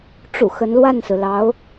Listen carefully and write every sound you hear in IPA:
ʈ͡ʂ ṵ˨˩ x ə˧˥ n l w a˥˩ n s ɹ̩˩ l ɑ˧˥ ʊ̯

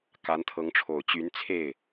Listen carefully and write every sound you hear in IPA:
k a˧˥ n t̪ʰ ɤ˧˥ ŋ ʈ͡ʂʰ o˨˩ ʊ̯ t͡ɕ y˧˥ n t͡sʰ e˥˩ ɪ̯

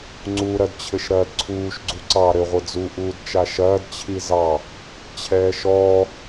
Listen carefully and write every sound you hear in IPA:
ŋ͡ǀ u ɾ ɐ d t͡ɕʰ ɘ ʃ ɾ ɐː d ǀʰ uː ʃ ɡ͡ǀ u ǀ ɑ ɾ ɘ ʁʷ ɘ d͡z u ʔ uː d t͡ʃ a ʃ ɐː d t͡ɕʰ i z ɑ | t͡ɕʰ ɛː ʃ ɔː

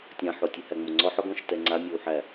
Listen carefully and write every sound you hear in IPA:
tʲ ã ħ o tʲ o h æ ŋ͡m o ŋ͡ǀ ɔ ħ ɔ ɡ ɔ̃ ʃ t ɛ ŋ͡ǀ a mʲ o w ħ æ

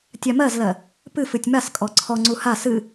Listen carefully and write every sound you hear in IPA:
tʲ a m ɜ z l ɜ | p ɨ f ɨ tʲ m a s kʼ ɔ ǀʰ ɔ ŋ͡ǀ u h a s ɨ

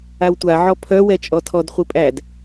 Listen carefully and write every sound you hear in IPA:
a w tʷ a ʕ ɔ pʰ œ w ɛ t͡ʃʼ ɔ tʰ ɔ d χʷ i pʼ æ d

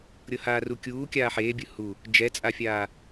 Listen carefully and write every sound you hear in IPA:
ɾʲ ɤ h aː r u kʲ uː kʲ aː ħ eː bʲ ɯ h u | d͡ʒ ɛ t͡sʼ a fʲ aː

